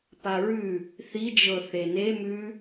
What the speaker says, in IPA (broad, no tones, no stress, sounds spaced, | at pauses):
p a ɹ ʉ | θ i d͡ʒ ɤ θ e n e m ʉ